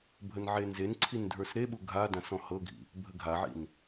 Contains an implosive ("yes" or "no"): yes